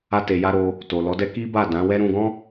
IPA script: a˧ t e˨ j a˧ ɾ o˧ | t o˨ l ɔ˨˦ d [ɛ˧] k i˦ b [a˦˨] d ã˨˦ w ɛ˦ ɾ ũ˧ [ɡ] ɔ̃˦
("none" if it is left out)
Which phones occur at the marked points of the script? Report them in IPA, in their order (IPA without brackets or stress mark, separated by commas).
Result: ɛ˦, a˦˨, ɡ